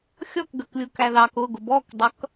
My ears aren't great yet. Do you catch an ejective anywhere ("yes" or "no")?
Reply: no